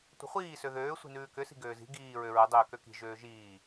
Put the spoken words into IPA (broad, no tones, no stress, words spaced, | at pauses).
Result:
tʷə̤χʷiː søðøː sʷi̤nʉːkʏ si̤ɡøːzi̤ ɡiː ɹøɹə dˤøːkøki̤ ʒøːʒiː